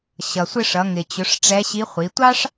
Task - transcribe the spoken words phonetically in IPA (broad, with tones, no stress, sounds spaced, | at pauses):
ɕ ʌ˩ sʷ ɪ˧ ʂ ʌ˩˧ ŋ ɪ˩ t͡ɕ ʊ˩˧ ʂ ʈ͡ʂ ɛ˧˥ ɕ i˧˥ χʷ i˩˧ tʷ ɑ˥ ʂ